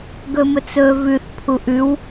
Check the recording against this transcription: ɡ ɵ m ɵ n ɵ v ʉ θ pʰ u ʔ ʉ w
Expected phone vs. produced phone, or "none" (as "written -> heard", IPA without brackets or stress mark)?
n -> t͡s